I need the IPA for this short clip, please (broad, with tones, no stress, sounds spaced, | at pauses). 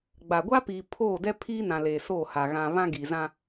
ɡ͡b a˨ ɡʷ a˦ p iː˨ pʰ oː˦˨ d ɛ˦ pʰ iː˦ n ã˨ l eː˨ s oː˦˨ h a˨ ɣ ã˨ β ã˦ ɡ i˨ z ã˦